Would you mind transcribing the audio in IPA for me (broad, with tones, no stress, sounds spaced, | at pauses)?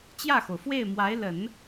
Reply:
t͡ɕ j ä˥˩ x o˩ ʊ̯ f w e˥˩ ɪ̯ m w a˧˥ ɪ̯ l ə˨˩˦ n